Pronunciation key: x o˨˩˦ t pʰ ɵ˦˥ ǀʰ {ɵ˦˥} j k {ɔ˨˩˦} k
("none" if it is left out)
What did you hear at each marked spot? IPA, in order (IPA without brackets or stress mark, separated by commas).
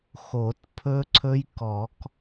ɵ˦˥, ɔ˨˩˦